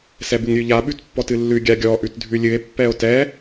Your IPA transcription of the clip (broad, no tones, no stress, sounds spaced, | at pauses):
s ɛ b ɨ ŋ ɾʲ ʉ ʎ a ɓ ʉ t pː ɔ t ɨ lː ʉ ɡʲ a ɡʲ ɔ ʔ ʉ t dʱ ʉ lʲ ɨ e̯ pː ɛ o̯ t ɛ